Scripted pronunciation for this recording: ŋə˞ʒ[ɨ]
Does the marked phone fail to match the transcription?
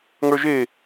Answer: yes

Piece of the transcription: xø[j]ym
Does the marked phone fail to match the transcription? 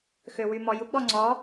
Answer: yes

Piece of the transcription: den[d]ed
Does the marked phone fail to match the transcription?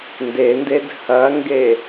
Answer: no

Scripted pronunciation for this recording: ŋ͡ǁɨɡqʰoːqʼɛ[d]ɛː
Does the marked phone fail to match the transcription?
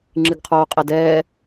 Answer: no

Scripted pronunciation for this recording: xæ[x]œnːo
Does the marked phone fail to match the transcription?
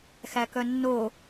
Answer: yes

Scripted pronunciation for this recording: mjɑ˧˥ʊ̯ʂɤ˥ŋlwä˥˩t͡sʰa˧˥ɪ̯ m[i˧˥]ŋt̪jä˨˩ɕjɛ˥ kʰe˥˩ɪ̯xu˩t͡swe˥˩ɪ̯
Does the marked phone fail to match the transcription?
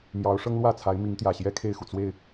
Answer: no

